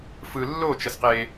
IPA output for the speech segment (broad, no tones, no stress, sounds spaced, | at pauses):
f ɯ lː o t͡ʃ ʌ s q e